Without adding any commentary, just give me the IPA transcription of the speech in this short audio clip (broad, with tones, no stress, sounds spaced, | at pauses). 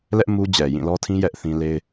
l ɛ˦ ʔ m u˦ d͡ʑ ɛ˨ j ĩ˦˨ l ɔ˦ tʰ ĩ˦ j ɛ˦ ʔ θ ĩ˦ l e˦ ɪ̯